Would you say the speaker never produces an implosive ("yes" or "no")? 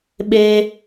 no